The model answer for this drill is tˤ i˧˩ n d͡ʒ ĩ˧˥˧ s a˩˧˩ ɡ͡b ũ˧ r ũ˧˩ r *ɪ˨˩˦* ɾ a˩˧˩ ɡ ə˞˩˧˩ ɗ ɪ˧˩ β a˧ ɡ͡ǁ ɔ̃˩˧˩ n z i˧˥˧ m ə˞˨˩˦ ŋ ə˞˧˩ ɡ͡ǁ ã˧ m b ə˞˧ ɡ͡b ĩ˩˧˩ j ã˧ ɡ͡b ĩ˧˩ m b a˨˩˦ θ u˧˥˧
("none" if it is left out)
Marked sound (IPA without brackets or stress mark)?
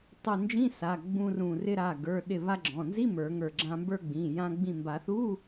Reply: ɪ˧